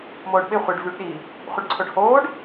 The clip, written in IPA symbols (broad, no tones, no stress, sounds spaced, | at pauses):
m oː ɖ ɓ ɪ χʷ ɪ ɖ v y ɖ ɗ i | χʷ ɪ ɖ ǀʰ o ɖ h oː ɖ